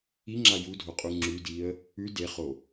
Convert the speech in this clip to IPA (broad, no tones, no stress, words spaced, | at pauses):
iŋ͡ǁa judʱoqʼu ŋ͡ǁʉdiə̯ | ʉ deχo